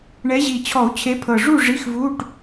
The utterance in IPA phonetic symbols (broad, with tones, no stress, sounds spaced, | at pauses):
ɳ ɛ˨˦ ʑ i˨˩ t͡ɕʰ ɔ˨˩˦ u̯ t͡ɕʰ e˨˦ pʰ ɤ˨˩ ʐ u˥˨ ʐ i˧˥˧ x v u˧˥˧ ʈ